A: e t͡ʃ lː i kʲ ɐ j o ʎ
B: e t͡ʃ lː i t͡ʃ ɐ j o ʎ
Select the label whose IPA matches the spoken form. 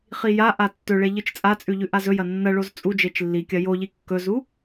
A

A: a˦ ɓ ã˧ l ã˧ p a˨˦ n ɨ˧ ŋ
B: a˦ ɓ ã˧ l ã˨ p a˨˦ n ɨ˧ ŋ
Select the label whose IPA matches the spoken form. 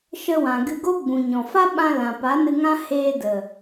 B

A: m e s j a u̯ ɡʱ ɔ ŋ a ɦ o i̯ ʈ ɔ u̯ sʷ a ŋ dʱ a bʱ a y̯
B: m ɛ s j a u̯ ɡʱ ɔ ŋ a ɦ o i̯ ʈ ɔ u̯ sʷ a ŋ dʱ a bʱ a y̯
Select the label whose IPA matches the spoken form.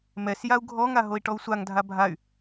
B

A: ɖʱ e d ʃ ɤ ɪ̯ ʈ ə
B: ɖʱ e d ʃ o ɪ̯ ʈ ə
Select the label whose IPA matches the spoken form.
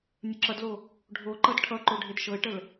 A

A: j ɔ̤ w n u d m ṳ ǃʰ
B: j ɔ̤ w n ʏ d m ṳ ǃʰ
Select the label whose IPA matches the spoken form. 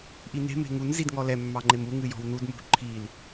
A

